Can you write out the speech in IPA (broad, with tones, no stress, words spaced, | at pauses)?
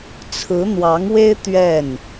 t͡sʰɹ̩˧˥n̪wɑ˧˥ŋwe˥ɪ̯ t̪ɥɛ˥˩n